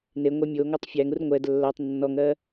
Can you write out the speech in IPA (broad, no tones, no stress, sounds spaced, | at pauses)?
n e ŋʷ ɛ mʲ o ŋ o tˤ fʲ æ ŋ u r ŋʷ ɛ d lː ɜ tˤ nː ɔ ŋ ɜ